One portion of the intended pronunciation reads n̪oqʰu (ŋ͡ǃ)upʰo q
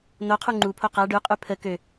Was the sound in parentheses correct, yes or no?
yes